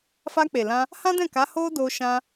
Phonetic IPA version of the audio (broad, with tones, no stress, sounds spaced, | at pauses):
f a˧ k͡p e˨ l ã˧ | h ã˦ d ɛ̃˦˨ k a˨˦ h o˦ d o˧ ʃ ã˧